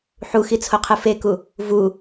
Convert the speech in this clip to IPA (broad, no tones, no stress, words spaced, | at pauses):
ħuxit͡sʰoqʰɨ feku | vu